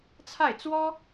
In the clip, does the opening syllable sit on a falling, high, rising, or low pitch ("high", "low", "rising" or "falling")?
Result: falling